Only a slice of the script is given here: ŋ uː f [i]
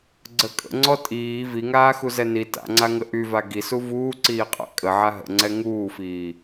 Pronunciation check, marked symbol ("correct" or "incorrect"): incorrect